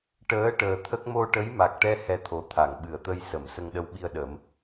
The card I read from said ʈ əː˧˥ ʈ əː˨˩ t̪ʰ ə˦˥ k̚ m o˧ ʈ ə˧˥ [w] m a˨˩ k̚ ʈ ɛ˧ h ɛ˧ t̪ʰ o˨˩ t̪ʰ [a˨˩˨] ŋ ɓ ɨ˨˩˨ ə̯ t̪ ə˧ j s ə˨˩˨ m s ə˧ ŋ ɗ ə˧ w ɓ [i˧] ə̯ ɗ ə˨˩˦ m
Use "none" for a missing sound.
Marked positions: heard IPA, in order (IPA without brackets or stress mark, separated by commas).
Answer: j, a˨˩˨, i˧